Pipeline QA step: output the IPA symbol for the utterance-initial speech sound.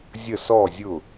zʲ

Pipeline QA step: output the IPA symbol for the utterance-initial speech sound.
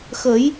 x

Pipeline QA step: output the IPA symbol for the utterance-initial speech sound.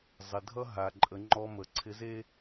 zˤ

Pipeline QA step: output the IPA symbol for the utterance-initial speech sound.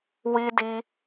w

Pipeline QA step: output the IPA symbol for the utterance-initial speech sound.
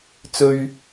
t͡s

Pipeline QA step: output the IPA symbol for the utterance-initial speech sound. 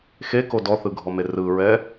x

